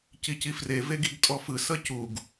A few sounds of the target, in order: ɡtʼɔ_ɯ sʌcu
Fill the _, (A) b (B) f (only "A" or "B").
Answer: B